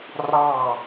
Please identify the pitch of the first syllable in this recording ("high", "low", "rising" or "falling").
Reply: falling